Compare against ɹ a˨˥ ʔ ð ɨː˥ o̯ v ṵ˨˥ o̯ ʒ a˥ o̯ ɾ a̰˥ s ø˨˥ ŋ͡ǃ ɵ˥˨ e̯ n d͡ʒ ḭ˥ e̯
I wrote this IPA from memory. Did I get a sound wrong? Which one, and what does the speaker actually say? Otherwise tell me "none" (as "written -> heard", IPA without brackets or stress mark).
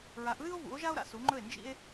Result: ø˨˥ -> u˨˥